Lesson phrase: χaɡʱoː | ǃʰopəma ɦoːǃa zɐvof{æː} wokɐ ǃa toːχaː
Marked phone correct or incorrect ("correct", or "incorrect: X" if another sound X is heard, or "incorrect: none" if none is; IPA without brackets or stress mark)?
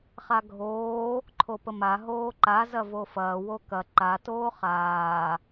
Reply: incorrect: ɐː